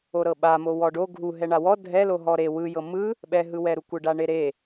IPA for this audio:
oɾɤɓamo wɔɖo ɡʱuɦɛɳa wɔ dʱɛlo ɦɔɾe wɯjɤ mɯ | ɓɛɦɯwɛɾu kʷɯɖaɳeɾe

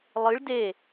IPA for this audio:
lˠɨɭ de

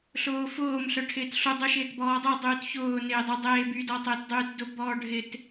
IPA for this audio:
ɬʊːfʊːm ɬœʈʰɪːtɬu dˤuʃɪːtbɔːdˤe dˤyːtçʊː nɪːdˤʊ dˤeːby dɔtˤɪːtdˤyːtdʊ bɔːɖʱɪt

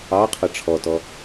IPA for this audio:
ɑqʰʌ ʈ͡ʂʰɔtɔ

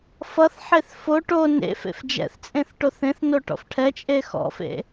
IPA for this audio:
fʌθħeθ fo ʈo nḛfḛf d͡ʒɛ̰θt͡sʼẽθ ʈoθẽθno ʈɔ̰fʈʰɛt͡ʃʼe xɔ̰fḛ

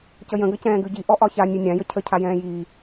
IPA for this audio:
cəjə̃ ɡəcɛ̃ːɡʉɟi ʔɔʔɒça nʲʉnʲãjə cʰə cʰajɛ̃ːjiː

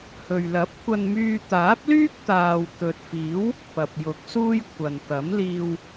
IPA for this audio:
hɵ˨ɥ lɐ˨˥p̚kʷɐ˧nmyː˧ t̪aː˨˥p̚lyː˥k̚t̪aː˨w t̪ɵ˨t̚fiː˨˥w | pɐ˨p̚jʊ˨˥k̚ suː˥jkʷʰɐ˨n t̪ɐ˨˥mliː˧w

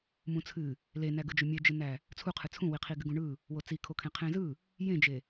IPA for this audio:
mũt͡sʰɨ | lenæɡɯd͡ʒo mʲed͡ʒɨnæ | t͡sʰuqʰɨ t͡sʰũwi qʰiɡɨɡũɳɯ | wot͡sikʰokʰẽ qʰẽzɯ | jẽd͡ʒe

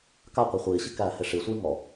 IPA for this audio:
kaqʷʌ χʷiːɕi kæːheʂisʷiː ŋɔ

